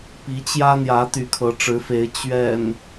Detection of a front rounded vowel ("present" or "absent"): present